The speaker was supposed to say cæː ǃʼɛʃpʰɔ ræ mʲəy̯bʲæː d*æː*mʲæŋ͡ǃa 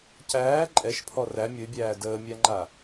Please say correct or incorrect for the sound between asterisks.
incorrect